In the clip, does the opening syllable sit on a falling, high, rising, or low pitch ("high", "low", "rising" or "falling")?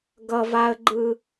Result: low